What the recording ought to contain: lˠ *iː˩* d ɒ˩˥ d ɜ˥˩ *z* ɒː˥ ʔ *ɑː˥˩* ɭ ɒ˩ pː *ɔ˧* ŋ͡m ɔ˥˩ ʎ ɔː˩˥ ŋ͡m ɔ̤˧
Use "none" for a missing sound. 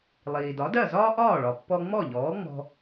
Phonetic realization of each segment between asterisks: iː˩, z, ɒː˥˩, ɔ˧

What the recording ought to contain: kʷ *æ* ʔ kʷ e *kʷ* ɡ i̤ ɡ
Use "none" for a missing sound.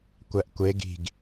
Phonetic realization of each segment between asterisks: æ, none

